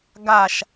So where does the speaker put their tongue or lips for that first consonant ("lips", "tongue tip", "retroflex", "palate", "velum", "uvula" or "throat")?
velum